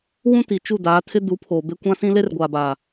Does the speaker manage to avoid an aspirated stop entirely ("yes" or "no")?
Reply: no